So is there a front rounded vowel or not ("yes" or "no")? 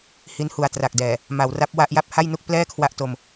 no